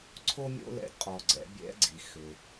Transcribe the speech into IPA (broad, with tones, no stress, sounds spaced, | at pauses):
ǀʰ o˥ mʲ o̰˥ l ɛ̰˧˥ d qʼ ɔ˩ ɡ͡ǀ ɛ̰˩˧ bʲ ɛ̰˧˥ ɡ͡ǀ i˩ x ʏ˩